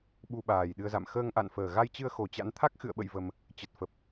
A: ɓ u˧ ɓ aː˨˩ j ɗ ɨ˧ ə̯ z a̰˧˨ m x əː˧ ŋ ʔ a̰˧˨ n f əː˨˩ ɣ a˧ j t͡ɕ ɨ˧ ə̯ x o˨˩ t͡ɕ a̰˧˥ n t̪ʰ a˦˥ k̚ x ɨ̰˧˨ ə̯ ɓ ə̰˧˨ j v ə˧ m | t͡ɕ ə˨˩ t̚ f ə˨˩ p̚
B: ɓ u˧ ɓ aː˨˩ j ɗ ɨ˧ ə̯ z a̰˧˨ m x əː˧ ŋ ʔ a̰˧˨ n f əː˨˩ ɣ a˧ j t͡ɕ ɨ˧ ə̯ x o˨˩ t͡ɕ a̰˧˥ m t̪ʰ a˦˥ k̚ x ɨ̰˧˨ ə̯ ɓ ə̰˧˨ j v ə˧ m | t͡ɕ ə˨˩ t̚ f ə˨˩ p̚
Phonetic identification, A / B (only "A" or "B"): A